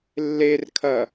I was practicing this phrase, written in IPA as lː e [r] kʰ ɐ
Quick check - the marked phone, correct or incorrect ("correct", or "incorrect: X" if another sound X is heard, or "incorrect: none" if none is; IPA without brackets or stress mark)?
correct